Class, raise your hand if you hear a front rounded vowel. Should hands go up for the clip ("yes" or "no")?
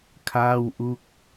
no